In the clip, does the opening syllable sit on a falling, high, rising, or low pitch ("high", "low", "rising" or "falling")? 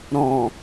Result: low